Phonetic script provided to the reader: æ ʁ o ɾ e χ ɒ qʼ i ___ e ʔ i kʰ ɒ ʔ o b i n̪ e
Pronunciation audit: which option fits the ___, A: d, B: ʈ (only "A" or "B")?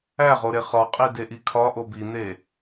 A